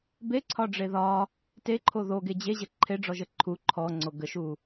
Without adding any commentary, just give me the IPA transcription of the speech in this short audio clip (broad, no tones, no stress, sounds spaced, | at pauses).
b e ǀʰ ɒ ɖ͡ʐ e ð ɒ | t e ǃʰ o ð o ɡ e d͡ʑ e ʑ ə ǃʰ e ɖ͡ʐ ɔ ʒ ə ǃʰ u ǃʰ ɔ ŋ͡ǀ o ɡ ə ʃ u